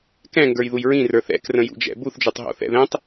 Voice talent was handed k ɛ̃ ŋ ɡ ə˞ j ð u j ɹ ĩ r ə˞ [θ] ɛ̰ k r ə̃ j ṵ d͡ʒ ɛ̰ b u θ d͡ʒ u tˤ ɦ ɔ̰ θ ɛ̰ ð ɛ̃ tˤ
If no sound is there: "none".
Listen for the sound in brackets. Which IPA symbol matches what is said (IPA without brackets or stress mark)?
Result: θ